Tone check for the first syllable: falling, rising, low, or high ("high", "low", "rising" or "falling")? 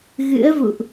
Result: rising